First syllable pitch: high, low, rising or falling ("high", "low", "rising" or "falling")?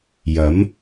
rising